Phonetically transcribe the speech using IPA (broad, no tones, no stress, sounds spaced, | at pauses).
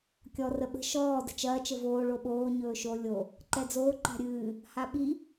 kʲ ɔ r ə ɓ ə̤ ʃ ɔː d ə̤ t͡ʃ ɐː t͡ʃ ə v oː ɭ o ɓ oː ɲ ɵː ʃ o lʲ o | ǃ ɛ d͡z oː ǃ a̤ ɾʲ ɨː | h a ɓ i